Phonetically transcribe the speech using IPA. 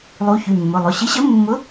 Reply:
lˠu˨˥çy˩˧˩mːʊ˩˧˩lˠʊ˩˧˩ ɕɪ˨˥ɕə˨˥mːʊ˨˥

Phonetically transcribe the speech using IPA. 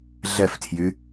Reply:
ɮɛftʰjy

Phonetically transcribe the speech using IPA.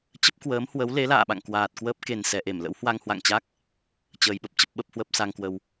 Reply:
t͡ɕə˦˥p̚kwəː˨˦mhwə˨˦wle˨˦ la̰ː˧˨ɓa̰˧˨ŋ kwaː˨˩t̚kwəː˦˥p̚ ke˨˩nsɛ˨˩ʔe˧˩m lə̰˧˥whwa˧ŋ hwa̰˧˨ŋt͡ɕa˦˥k̚ | t͡ɕəː˧jɓə˦˥p̚t͡ɕə˦˥p̚ ɓə˦˥p̚hwə˦˥p̚ sa˧ŋkwə˧w

